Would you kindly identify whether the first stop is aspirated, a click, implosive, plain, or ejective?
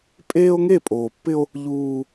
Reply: ejective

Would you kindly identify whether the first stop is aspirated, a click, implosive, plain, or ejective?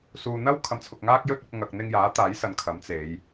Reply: aspirated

